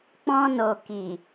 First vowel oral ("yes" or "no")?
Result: no